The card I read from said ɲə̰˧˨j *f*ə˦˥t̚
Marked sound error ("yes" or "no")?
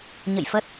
no